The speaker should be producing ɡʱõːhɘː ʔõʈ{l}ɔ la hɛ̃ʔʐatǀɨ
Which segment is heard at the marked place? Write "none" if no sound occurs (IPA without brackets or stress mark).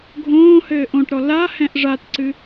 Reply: ɾ